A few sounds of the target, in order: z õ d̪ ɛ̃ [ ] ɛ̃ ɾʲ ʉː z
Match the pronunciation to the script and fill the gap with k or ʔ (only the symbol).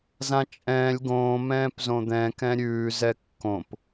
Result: k